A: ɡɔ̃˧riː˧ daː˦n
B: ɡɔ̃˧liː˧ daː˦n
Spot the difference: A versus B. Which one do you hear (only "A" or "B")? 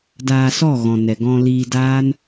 B